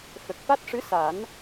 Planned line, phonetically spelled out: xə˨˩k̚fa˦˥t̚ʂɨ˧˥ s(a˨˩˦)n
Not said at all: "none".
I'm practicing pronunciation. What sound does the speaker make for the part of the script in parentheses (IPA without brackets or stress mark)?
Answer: a˨˩˦